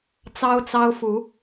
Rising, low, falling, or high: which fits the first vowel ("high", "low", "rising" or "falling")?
high